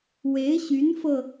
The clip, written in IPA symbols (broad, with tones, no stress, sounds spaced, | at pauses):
w e˧˥ ɪ̯ ɕ y˧˥ n f ɤ˧